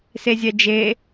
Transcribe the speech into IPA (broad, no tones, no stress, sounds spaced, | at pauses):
s e zʲ ɛ d͡ʒ e